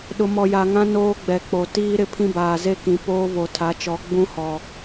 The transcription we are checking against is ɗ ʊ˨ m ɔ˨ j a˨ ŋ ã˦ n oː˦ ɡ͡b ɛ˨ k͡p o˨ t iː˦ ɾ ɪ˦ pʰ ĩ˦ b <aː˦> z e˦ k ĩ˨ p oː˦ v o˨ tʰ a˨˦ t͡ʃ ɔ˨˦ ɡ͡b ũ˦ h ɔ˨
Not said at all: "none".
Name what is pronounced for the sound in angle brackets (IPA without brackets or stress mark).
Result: aː˨